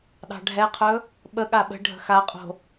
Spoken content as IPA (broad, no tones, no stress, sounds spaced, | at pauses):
ɗ ɑ̤ ɖʱ ɛ qʰ ɵ | ɓ ə ɠ a ɓ ə̤ ɖʱ ə̤ x a qʼ o̤